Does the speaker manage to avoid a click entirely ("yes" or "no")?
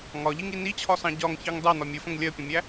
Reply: yes